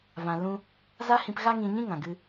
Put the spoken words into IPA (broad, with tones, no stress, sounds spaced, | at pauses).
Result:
v ã˨ l ũ˧ | z a˦ h ĩ˧ p ɣ a˦ ŋ ĩ˧ ɲ ĩ˦ ŋ ã˨ ɡ ɨ˧